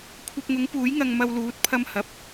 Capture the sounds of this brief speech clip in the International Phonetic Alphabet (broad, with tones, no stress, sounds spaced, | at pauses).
kʷʰ ɐ˧ p̚ ŋ ʊ˨˥ ŋ p uː˨˥ j ŋ ɐ˧ ŋ m ɐ˧ w l uː˨˥ t̚ pʰ ɐ˧ m h ɐ˨˥ p̚